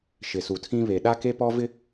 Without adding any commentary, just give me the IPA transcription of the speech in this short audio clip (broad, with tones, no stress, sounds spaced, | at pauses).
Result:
ʃ ɪ˨ s u˨ tʰ ĩ˦ β e˨ ɗ a˦ k e˦ p ɔ˦ v ɪ˦